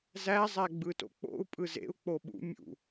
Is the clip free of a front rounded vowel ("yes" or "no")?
yes